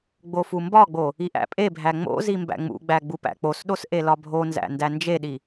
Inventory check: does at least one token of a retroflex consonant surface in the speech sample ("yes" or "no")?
no